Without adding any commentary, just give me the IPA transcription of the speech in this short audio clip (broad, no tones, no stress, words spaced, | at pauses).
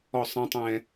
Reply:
ɔsˤ ɛ̃tˤɛ̃